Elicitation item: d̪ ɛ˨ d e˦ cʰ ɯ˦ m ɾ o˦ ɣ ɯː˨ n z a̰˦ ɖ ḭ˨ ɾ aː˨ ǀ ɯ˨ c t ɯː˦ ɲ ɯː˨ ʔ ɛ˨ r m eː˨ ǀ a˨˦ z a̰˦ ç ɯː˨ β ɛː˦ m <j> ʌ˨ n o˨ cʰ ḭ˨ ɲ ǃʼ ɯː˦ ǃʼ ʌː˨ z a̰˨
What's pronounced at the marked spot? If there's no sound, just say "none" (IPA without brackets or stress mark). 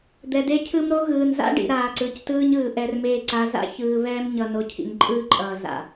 ɲ